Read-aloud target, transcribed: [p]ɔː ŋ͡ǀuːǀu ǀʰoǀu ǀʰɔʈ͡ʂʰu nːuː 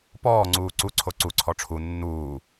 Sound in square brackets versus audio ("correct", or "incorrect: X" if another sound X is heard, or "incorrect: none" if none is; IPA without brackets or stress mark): correct